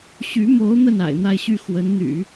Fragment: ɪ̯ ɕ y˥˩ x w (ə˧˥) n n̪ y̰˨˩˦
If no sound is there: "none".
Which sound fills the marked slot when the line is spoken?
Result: ə˧˥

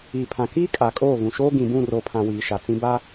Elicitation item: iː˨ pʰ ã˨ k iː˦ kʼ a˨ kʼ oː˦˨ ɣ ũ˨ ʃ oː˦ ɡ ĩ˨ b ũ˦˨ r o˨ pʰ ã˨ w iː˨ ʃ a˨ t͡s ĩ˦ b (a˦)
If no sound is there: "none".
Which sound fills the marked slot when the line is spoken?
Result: a˦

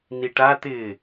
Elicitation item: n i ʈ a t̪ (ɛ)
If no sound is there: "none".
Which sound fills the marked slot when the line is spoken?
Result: ɪ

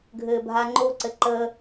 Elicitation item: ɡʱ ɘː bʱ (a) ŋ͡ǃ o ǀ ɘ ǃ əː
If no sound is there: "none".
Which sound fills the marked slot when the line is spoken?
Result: a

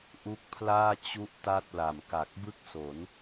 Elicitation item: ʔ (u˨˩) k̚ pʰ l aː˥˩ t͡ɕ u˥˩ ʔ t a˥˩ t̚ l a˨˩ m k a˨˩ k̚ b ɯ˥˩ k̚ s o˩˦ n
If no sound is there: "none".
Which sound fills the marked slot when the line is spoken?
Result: u˦˥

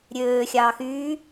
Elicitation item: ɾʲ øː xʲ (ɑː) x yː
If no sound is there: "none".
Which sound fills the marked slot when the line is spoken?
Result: ɑː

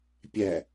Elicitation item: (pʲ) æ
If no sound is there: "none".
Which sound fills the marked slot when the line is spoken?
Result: pʲ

